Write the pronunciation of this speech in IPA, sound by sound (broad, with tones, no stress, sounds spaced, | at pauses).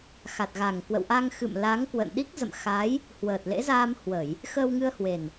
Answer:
x a˨˩ t̚ ɣ a˨˩ ŋ k w ə̰˧˨ w ʔ a˧ ŋ x ɨ̰˧˨ m l a˨˦ ŋ k w ə̰˧˨ n ɗ i˦˥ k̚ z ə̰˧˨ m x a˨˦ j | h w əː˨˩ t̚ l ḛ˧˥ z aː˧ m h w ə˧˩˨ j | x əː˧ w ŋ ɨ˧ ə̯ h w e˨˩ n